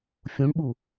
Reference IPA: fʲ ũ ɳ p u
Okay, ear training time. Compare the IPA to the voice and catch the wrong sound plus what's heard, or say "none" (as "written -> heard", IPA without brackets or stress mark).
p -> ɓ